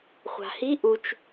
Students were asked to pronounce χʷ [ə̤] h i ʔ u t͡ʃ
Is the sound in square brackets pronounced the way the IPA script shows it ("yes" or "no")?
no